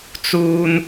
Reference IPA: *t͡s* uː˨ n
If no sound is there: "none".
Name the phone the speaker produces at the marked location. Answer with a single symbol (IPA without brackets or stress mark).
t͡s